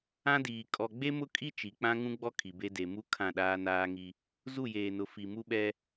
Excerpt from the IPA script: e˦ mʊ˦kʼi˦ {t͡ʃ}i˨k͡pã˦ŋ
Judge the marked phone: correct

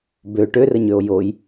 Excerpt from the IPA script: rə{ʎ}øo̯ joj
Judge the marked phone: incorrect: ɲ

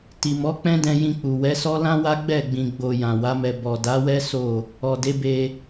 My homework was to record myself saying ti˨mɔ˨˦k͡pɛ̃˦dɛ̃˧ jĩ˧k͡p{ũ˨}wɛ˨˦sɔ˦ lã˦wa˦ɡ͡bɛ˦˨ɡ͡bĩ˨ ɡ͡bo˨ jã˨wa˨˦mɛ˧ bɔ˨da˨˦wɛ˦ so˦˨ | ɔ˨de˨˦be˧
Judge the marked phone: incorrect: u˨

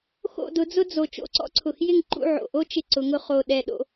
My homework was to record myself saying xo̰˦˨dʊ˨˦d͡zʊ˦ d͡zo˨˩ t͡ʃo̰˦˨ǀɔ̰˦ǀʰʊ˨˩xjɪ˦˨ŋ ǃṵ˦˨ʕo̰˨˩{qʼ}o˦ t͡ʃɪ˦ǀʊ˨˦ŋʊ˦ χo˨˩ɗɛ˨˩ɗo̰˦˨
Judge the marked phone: incorrect: ʔ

